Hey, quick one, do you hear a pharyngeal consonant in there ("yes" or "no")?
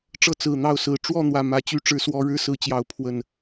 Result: no